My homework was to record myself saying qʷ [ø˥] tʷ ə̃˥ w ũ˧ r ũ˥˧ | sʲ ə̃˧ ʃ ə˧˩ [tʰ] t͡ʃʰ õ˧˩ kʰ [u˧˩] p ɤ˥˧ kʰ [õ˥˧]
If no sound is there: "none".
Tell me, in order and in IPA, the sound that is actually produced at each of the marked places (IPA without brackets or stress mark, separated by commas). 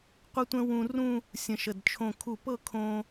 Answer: ə˥, d, u˧˩, õ˧